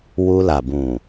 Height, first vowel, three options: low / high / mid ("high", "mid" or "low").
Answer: high